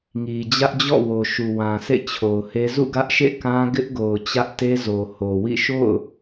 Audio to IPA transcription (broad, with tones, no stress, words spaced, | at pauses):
ŋi˨d͡ʑä˦ʔd͡ʑɔ̰˦˨wo˨ ʃu˨wã˨sʰḛ˦˨ t͡ɕʰo˨ʊ̯he˦ zṵ˦˨ɡä˦ʔʃḛ˦˨ kã˦ɡɪ˦ʔɡo˨ʊ̯ t͡ɕä˦ʔte˦zo˨ ho˨wḭ˦˨ ʃo̰˦˨ʊ̯